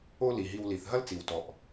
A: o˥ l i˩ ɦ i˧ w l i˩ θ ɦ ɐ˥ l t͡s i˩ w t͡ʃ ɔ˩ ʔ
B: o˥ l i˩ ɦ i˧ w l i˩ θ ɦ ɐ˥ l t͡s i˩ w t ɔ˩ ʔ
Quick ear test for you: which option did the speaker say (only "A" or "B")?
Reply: B